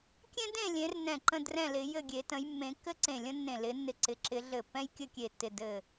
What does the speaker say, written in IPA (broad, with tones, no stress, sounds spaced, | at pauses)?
kʲ ẽ˥ d ẽ˥˨ lʲ ẽ˨˦ r n ɛ̃˧˩ ǃ ə̃˥˨ d r ɛ̃˥˨ l ɪ˨˦ j ɘ˥˨ ɡʲ e˨˦ t ə̃˨˦ j mː ẽ˨˦ kː ɘ˥ ǀ ẽ˧˩ lʲ ə̃˥ nː ẽ˧˩ l ɪ˨˦ nː ɪ˧˩ ǀ ɪ˨˦ ǁ ɪ˨˦ ɮ ɘ˧˩ pː ɛ̃˥ j kʲ ɘ˥˨ kʲ e˧˩ tː ɪ˧˩ d ɘ˧˩